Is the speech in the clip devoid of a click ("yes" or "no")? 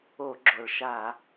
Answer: no